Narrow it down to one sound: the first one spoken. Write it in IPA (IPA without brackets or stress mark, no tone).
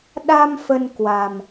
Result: ɗ